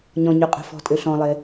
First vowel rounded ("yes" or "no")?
yes